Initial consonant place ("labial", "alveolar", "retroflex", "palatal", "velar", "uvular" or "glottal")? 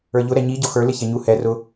palatal